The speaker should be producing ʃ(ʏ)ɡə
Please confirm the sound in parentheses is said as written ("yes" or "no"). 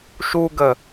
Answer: no